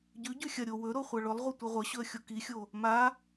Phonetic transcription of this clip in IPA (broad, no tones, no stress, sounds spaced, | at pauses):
ɟ ʉ ɟ ʉ xʲ ɐ ɾʲ o w ɵ ɾ o χʷ a ɭ ɵ lˠ ʁʷ ɐ tʷ i ʁʷ ɐ ɕ ɵ ə̯ xʲ o k i xʲ o | m a